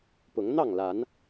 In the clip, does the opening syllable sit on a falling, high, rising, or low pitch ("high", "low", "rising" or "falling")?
rising